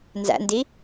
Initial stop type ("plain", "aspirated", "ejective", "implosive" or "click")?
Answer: plain